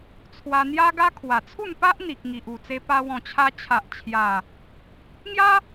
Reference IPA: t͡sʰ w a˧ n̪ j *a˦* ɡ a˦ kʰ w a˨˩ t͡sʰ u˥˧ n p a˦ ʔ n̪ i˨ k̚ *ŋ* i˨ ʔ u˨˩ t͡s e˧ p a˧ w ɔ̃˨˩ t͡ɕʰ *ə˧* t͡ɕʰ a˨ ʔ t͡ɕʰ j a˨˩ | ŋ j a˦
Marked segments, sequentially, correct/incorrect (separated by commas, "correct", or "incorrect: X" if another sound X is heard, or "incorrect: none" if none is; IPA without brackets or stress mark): correct, correct, incorrect: a˧